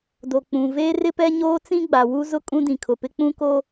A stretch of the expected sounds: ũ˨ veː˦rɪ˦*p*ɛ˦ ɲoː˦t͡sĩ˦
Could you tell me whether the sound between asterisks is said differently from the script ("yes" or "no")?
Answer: no